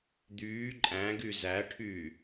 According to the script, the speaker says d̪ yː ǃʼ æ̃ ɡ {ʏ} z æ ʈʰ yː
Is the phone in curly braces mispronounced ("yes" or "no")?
yes